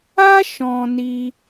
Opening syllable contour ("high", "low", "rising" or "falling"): high